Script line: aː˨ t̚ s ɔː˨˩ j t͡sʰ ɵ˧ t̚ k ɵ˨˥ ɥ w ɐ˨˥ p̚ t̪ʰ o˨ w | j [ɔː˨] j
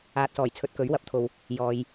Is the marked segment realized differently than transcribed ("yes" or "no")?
no